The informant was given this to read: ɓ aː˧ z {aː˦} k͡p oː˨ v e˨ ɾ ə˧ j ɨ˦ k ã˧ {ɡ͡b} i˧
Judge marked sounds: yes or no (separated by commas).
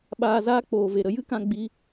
yes, yes